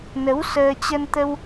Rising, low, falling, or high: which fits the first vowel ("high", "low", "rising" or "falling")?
rising